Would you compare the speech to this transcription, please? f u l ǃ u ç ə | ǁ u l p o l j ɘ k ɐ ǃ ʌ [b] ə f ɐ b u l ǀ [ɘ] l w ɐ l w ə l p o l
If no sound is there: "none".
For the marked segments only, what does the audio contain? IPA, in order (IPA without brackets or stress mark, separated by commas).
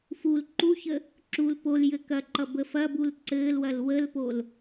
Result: b, ɘː